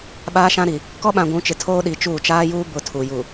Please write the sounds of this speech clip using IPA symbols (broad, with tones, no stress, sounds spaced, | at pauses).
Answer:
ɓ aː˦ ʃ ã˦ ɾ i˨ | k ɔ˦ ɓ ã˨ ɡʷ ũ˨˦ t͡ʃ ɪ˨ tʰ oː˦ ɗ i˨ t͡ʃ uː˦˨ t͡ʃ aː˦ j uː˦ b ʊ˦˨ tʰ u˨ j u˨